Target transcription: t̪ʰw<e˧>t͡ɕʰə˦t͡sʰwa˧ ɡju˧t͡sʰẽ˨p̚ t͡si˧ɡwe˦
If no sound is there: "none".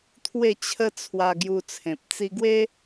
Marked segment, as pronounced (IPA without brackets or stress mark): e˥˧